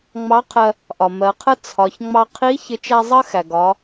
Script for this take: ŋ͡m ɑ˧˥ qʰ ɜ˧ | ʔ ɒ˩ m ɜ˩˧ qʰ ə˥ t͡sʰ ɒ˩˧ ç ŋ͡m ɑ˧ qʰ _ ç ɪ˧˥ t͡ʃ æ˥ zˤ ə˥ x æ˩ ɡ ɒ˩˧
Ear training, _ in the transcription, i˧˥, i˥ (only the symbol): i˧˥